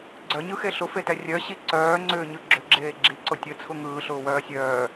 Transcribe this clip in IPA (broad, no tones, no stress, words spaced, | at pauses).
ɡ͡ǀœɲɯxe ɬʊfetɛ rʲœɕi ǀœːŋ͡ǀʏːɲɯ ɡ͡ǁʏɡ͡ǁeː ɡ͡ǁiǀʊ tʲət͡sʰʊ ŋɯːɬʊːwœː sʲœː